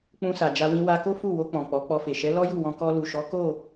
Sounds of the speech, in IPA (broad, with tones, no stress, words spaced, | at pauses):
k͡pũ˧sa˨d͡ʒa˧wĩ˧ wa˧ko˦ fu˦˨wo˧k͡pɔ̃˨ k͡pɔ˨˦k͡pɔ˧fe˨ ʃɛ˨˦lɔ˦ju˦˨wɔ̃˧ kɔ˧lu˨ʃɔ˨˦ ko˦˨